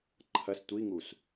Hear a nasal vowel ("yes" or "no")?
no